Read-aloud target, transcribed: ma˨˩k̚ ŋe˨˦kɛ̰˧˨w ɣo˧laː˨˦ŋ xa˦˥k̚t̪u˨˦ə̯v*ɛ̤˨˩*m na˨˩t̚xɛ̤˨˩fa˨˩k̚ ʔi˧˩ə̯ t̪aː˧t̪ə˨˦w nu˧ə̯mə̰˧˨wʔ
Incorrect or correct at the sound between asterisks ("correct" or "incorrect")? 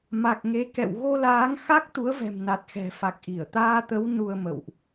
correct